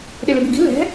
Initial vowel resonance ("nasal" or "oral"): oral